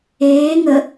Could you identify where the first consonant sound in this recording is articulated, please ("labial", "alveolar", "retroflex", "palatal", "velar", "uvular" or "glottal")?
velar